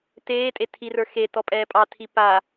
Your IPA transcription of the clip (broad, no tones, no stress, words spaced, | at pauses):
teːtʼe tʰirə˞ xetɔ pʼɛːpʼɑtʰi pa